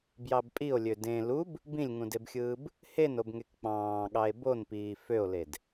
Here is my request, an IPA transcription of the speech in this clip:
bjɑbpʼio̯lʲø dẽ lub | bĩlʲŋũdebxʲɯːb | henobŋek k͡pɑ̃ːɠɑe̯ bonpiː føo̯led

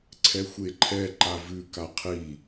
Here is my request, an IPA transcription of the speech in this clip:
ǀʰɛxʷeǃʰɛ ǃavʉ kaqʰi

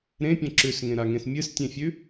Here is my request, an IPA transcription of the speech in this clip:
ɾẽpʲɐ̃ ǁʉsŋẽɾaŋẽs mʲɨstʲẽfʲʉ

